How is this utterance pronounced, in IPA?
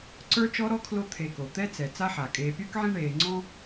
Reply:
ǀ ə˞˥ t͡ʃ ɔ˥ ɾ ɔ˥ kʰ l o˦ t̪ʰ e˨ k o˩ t̪ ɛ˦ t͡s ɛ˩ t͡s a˥ ħ a˩ kʼ eː˨ pʲ ə˞˥ k ʕ ĩ˦ ɳ eː˨ ŋ͡ǀ ɔ̃˦

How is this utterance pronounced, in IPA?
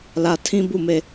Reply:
l ä˨ tʰ ĩ˦ b u˦˨ m e˦˨

